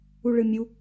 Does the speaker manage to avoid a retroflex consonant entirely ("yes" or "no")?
no